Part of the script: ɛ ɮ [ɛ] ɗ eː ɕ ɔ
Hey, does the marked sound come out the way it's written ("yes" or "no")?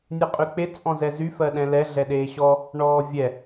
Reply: yes